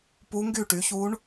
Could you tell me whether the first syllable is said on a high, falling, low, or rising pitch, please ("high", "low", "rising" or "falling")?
rising